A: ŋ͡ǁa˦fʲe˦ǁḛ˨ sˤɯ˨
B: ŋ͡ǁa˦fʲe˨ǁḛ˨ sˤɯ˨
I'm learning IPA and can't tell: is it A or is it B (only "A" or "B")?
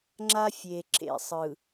B